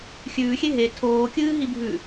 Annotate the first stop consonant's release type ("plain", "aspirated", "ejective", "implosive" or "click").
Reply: aspirated